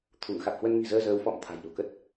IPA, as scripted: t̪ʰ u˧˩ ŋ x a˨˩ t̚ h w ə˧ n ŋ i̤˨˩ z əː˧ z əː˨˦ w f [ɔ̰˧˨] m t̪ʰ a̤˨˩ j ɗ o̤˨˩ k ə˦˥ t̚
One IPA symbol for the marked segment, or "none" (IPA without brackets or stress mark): ɔ̰˧˨